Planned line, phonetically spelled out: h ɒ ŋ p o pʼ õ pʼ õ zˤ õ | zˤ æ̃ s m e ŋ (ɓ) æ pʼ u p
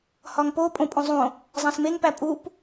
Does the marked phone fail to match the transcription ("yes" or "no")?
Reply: yes